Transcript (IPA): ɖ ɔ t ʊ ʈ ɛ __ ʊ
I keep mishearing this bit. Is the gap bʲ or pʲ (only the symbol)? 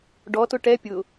pʲ